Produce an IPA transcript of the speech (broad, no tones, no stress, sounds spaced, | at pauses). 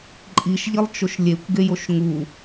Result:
ǃʼ i ʃ ʎ i lˠ t͡ʃ o ʃ lʲ e kʷ ɡ e j o ʃ ŋ u